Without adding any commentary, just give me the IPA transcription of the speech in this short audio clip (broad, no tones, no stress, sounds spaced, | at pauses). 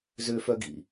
z ø f œ ɡ ḭ